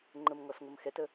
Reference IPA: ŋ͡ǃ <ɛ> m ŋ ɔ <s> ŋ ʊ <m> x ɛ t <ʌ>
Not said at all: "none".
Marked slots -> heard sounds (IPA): ə, s, m, ə

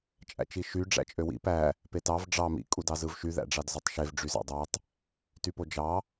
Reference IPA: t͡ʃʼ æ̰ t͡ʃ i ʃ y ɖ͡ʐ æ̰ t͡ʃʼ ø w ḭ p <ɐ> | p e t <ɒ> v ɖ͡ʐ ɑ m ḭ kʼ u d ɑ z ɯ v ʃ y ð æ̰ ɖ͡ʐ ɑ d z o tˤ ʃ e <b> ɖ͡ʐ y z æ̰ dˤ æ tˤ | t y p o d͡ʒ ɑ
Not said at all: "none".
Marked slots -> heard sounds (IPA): æ, ɑ, v

